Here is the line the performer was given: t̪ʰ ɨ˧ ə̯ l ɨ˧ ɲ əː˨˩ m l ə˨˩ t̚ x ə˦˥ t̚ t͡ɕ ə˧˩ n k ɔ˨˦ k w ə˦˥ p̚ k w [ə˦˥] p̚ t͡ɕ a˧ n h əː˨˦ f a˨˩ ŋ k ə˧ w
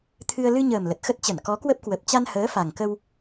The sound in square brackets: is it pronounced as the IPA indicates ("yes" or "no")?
no